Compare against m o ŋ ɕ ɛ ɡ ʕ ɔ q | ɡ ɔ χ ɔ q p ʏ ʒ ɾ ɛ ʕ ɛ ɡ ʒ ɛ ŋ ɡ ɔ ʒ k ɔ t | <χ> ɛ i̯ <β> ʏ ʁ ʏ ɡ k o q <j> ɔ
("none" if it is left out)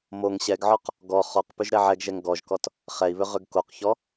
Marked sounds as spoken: χ, β, ç

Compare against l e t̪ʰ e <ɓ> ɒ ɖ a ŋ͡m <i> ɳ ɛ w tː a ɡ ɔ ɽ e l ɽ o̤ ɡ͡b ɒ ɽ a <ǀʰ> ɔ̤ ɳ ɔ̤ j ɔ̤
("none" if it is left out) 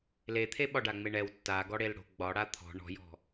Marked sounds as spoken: ɓ, e, t̪ʰ

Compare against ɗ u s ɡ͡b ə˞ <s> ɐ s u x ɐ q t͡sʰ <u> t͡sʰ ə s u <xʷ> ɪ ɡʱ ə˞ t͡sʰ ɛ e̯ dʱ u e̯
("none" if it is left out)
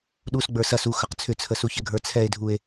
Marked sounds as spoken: s, ʏ, ç

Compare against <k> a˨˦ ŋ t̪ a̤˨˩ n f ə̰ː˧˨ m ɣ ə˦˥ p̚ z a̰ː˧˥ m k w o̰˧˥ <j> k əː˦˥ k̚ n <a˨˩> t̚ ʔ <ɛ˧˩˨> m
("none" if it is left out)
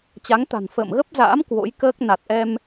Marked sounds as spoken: t͡ɕ, j, a˨˩, ɛ˧

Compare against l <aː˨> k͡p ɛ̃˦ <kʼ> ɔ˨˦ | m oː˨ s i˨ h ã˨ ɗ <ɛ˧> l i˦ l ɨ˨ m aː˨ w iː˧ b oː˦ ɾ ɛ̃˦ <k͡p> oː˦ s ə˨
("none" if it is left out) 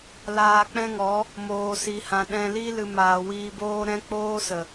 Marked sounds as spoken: aː˧, ŋ, ɛ̃˧, k͡p

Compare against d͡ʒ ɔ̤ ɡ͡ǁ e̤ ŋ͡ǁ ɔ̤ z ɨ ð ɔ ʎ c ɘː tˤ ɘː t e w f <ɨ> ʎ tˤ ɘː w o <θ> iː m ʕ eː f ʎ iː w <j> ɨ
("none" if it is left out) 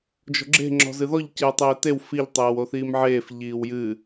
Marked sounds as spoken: i, θ, j

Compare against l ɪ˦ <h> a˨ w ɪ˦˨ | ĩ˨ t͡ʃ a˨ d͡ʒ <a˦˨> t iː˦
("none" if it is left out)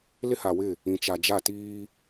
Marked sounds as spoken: h, a˦˨

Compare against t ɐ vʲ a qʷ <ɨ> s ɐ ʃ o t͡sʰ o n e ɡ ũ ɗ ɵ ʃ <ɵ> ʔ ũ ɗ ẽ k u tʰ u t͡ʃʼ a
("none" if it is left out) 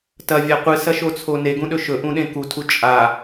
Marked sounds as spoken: ɨ, ɵ

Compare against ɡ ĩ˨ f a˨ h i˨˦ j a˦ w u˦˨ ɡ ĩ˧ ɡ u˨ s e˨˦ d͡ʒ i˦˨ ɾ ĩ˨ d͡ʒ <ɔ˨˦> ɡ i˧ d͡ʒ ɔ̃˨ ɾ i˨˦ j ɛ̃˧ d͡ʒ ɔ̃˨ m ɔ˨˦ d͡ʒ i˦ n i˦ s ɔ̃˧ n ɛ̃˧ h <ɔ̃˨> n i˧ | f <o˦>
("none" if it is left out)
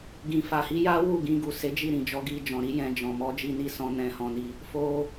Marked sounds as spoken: ɔ˨˦, ɔ̃˧, o˧

